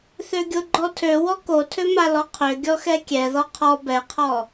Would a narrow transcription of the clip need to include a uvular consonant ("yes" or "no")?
yes